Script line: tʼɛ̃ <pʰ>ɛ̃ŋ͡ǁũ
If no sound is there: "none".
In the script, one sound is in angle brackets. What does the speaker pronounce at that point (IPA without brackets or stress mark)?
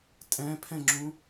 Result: pʰ